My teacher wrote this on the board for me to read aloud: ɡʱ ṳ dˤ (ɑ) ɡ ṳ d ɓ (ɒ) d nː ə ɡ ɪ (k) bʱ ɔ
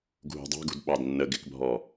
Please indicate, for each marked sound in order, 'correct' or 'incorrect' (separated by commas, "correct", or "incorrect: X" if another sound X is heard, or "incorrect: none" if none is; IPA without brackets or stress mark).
incorrect: ɑ̤, incorrect: ɑ, correct